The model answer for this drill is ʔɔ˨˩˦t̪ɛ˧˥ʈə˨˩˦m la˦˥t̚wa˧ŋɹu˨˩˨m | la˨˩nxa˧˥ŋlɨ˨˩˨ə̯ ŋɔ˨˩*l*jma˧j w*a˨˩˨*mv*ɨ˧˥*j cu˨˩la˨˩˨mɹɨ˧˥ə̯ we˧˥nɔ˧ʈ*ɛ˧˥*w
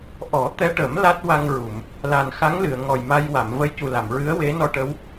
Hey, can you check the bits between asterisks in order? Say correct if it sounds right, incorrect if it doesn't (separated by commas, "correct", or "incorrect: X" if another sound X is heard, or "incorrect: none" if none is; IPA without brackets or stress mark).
incorrect: none, correct, incorrect: ə˧˥, incorrect: ə˧˥